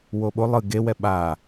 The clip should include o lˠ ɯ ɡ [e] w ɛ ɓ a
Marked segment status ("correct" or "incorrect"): correct